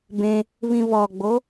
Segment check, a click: absent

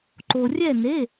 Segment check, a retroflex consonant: absent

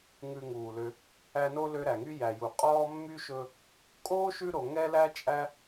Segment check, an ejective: present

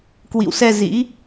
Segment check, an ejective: absent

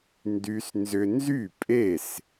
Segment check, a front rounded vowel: present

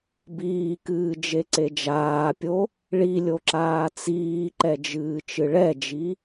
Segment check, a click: present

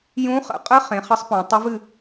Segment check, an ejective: present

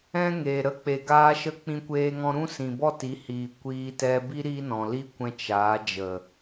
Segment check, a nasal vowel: present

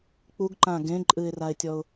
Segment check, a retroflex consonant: absent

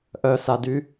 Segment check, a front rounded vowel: present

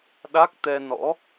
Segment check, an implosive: present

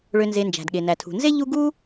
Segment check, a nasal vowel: absent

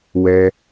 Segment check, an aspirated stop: absent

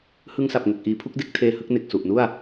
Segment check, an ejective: absent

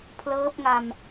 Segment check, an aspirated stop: present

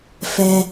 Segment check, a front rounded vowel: absent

